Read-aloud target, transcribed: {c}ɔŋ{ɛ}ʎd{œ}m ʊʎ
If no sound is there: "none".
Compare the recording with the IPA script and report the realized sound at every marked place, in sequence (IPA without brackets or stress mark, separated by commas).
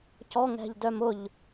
c, ɛ̤, œ